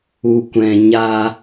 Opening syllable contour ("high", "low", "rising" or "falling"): low